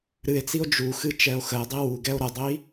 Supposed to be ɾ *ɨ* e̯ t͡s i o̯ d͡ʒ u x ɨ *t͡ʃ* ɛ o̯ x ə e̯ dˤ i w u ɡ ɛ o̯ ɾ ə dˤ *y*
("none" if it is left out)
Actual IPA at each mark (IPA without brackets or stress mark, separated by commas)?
ɨ, t͡ʃ, i